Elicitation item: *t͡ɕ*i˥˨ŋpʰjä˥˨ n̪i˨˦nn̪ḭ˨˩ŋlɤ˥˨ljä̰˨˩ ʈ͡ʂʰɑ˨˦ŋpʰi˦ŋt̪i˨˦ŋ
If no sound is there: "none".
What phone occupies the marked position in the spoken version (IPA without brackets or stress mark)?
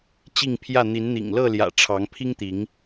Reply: t͡ɕ